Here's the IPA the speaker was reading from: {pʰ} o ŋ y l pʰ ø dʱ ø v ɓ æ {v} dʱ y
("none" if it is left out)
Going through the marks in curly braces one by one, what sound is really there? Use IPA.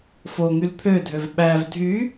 f, v

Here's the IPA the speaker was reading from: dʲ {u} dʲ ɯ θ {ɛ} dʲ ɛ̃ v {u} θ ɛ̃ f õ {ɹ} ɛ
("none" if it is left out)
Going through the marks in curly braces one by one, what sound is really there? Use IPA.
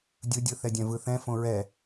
ɯ, ɛ, ɯ, ɹ

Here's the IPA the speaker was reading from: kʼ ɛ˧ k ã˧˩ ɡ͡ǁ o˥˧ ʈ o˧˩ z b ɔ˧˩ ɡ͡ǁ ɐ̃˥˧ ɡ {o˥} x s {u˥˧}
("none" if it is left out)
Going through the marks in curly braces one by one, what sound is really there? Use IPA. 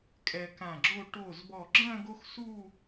o˥, u˥˧

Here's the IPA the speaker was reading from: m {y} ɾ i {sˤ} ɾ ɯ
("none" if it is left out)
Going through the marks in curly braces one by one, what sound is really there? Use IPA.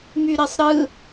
y, sˤ

